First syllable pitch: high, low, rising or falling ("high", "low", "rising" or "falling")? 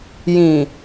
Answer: low